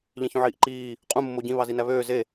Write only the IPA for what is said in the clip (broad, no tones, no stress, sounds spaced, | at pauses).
ʎ ẽ ç ũ ʕ iː ʔ ǃ iː | qʼ ũ mː o ɟ ĩ β ɑ z i n æ β øː z e